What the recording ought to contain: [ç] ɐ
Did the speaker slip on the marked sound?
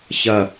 no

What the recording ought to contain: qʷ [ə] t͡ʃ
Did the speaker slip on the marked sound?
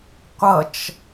yes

